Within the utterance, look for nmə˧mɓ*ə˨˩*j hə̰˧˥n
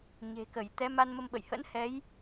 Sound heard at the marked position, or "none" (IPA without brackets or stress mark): ə̰˧˨